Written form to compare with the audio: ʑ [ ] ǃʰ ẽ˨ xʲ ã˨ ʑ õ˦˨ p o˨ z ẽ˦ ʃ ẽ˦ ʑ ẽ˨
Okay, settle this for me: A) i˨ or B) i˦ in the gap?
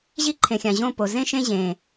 B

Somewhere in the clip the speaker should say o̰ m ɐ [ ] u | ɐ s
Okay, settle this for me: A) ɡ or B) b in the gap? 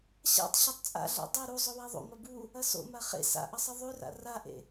B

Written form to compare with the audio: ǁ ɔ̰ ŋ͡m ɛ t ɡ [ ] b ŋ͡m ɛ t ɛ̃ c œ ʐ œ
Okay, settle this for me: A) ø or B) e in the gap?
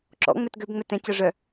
A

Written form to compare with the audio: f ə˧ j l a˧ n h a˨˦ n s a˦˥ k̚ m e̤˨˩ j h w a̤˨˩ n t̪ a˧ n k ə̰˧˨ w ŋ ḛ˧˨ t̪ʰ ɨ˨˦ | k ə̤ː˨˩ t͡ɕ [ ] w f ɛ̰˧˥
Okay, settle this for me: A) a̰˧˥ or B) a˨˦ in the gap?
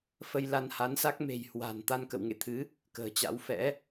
A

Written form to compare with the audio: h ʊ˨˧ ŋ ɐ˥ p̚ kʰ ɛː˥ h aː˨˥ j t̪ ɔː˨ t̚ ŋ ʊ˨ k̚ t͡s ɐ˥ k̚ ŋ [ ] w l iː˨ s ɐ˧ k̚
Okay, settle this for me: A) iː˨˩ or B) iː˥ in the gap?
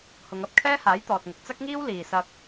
B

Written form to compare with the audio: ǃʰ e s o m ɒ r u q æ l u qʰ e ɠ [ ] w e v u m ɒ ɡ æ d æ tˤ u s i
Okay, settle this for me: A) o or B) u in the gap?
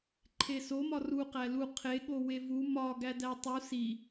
A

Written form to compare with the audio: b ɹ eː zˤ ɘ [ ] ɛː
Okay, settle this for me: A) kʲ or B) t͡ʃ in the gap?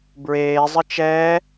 B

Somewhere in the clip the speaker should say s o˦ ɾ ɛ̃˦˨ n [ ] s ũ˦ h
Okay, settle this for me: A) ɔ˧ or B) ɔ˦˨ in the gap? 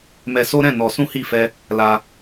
A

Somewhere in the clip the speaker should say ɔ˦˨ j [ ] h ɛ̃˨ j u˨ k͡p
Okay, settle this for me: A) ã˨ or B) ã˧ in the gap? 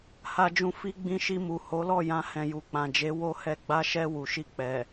B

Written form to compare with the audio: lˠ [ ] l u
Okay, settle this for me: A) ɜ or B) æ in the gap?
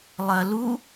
A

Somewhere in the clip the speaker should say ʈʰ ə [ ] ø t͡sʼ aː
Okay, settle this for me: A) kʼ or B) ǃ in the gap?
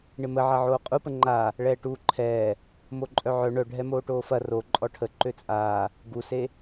B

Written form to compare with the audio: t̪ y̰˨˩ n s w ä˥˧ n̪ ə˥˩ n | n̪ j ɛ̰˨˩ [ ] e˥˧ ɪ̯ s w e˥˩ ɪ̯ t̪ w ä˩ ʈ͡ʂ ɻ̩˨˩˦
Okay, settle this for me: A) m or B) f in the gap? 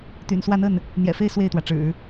B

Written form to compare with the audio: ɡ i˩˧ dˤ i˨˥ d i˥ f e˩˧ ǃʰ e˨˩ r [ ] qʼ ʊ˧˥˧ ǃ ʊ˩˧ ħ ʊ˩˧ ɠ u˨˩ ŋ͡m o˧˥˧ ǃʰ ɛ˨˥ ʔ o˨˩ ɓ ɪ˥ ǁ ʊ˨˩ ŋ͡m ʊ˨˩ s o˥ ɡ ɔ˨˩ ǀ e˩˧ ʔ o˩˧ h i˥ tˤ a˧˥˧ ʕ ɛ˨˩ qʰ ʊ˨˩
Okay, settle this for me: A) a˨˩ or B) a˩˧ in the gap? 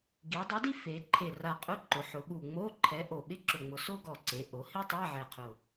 A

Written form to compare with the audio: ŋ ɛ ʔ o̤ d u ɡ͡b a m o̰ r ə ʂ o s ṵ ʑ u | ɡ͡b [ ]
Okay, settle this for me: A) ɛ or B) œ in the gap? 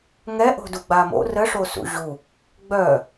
B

